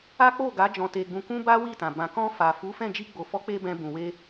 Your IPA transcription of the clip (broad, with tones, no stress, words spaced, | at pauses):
a˦k͡po˦˨ɡa˨˦ d͡ʒɔ̃˧te˧ɡ͡bũ˧kũ˦ ba˦wi˦˨tã˨ bã˨kɔ̃˧ fa˨fu˨˦fɛ̃˦˨ d͡ʒi˧ɡ͡bo˨fɔ˨˦k͡pe˧ bɛ̃˧ bũ˨we˧